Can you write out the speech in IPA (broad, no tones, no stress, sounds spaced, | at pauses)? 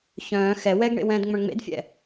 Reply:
ç œ̃ː x ɛ w ɛ ɡ ɳ ḛ w ɛ̃ː d ŋ͡m œ̃ ɳ ŋ͡m ḛ d fʲ ɛ̰